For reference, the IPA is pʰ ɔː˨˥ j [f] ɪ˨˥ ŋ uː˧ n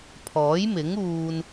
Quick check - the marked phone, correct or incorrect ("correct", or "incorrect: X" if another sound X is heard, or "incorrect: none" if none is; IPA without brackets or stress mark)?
incorrect: m